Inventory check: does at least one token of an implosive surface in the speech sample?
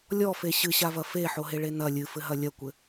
no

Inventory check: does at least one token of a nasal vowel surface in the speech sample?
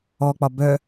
no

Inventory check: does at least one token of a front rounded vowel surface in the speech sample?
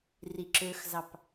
yes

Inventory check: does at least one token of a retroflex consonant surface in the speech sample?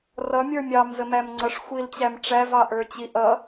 yes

